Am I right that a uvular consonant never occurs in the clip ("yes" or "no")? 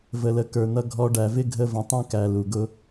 yes